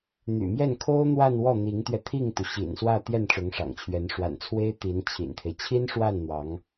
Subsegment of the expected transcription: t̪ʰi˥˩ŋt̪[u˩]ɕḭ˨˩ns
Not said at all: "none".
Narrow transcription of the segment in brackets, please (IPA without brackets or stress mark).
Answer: u˩